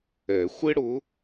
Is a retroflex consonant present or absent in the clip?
present